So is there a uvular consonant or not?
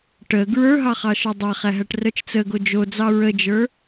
yes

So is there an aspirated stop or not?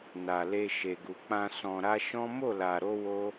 no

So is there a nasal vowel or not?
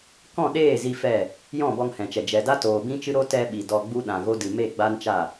yes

